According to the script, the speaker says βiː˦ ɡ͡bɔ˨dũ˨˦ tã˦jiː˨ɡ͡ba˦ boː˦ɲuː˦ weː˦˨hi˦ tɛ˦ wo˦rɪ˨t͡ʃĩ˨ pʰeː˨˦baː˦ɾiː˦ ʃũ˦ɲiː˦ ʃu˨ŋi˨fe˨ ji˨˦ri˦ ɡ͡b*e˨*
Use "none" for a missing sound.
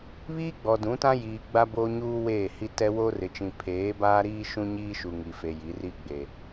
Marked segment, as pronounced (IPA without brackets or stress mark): e˨